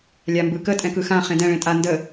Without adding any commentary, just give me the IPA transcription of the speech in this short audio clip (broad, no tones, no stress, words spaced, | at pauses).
lʲambɯkə tʼɛ̃kɯxã χẽdɛ̃ ɭẽtʼa ndə